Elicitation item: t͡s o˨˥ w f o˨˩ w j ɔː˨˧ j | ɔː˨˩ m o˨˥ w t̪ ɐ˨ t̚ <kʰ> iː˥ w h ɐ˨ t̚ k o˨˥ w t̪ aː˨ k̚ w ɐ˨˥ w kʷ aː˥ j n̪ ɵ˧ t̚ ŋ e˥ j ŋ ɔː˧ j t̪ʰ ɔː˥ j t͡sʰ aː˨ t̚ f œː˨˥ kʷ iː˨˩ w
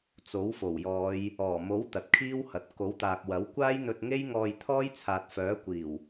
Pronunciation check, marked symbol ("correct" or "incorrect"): correct